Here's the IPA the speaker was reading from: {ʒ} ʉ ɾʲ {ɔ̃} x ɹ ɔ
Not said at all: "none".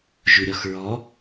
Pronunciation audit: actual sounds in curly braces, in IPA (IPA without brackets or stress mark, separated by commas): ʒ, ɔ